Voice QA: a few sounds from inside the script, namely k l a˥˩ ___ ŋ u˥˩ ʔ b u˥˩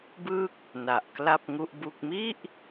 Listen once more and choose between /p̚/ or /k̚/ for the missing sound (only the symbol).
p̚